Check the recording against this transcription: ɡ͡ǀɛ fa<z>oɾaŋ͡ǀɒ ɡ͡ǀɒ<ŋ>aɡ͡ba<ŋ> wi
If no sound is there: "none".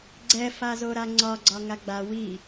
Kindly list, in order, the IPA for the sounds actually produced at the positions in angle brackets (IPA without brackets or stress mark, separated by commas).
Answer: z, ŋ, none